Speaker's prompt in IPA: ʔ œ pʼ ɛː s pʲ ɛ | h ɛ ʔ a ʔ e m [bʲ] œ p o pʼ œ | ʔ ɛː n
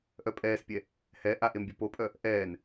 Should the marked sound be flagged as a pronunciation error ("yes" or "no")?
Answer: no